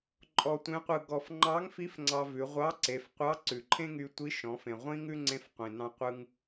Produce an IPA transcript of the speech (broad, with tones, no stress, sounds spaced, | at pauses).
ǃʼ ɔ˧ tʷ ẽ˧˥ qʷ ɯ˧ ɡ ɔ˧ f ŋ͡ǃ ɑ˧˥ ŋ f i˧˥ f ŋ͡ǀ ɑ˧ v ʉ˩˧ ʁʷ ɑ˧˥ ǀ e˩˧ f qʷ ɑ˧˥ ǀ ʉ˩ ǃʰ ẽ˥ ŋ y˧ tʷ i˧˥ ʃ ɔ̃˩˧ f ẽ˩ ʁʷ ĩ˥ ŋ ʉ˥ ŋ͡ǀ ẽ˧˥ f qʷ ĩ˩ n ɑ̃˧ qʷ ɯ˧ ŋ